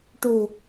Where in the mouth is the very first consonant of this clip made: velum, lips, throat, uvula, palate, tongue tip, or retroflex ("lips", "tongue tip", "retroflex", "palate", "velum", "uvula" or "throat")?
retroflex